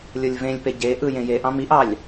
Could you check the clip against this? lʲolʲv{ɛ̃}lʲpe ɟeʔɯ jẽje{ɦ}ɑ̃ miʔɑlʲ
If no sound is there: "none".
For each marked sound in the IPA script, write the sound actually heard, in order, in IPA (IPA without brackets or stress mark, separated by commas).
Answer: ẽ, ʔ